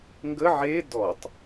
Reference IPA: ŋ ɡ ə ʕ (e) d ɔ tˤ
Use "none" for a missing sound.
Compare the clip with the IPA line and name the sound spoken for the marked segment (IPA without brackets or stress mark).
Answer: e